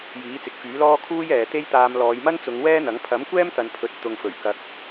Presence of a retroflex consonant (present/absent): absent